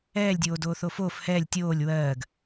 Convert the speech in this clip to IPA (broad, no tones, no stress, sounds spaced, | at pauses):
ɛː lʲ dʲ oː d oː θ o f oː f h ɛː lʲ tʲ oː lʲ w ɜː ɡ